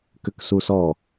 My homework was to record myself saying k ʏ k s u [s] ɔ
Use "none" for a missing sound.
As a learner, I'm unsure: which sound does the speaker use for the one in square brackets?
s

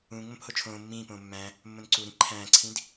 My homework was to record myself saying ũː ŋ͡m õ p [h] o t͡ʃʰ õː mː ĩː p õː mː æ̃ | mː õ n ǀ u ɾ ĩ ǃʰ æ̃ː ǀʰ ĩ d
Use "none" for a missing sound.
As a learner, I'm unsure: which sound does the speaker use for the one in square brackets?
h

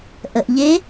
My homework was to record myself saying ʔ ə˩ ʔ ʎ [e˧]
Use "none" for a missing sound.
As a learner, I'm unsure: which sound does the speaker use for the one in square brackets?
e˧˥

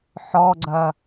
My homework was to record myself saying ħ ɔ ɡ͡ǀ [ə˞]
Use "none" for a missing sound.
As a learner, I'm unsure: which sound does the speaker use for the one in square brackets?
ɐ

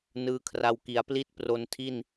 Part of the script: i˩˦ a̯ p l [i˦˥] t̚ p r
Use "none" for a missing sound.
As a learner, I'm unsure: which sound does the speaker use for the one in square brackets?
i˥˩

